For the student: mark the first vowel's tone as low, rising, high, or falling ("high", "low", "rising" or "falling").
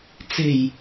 low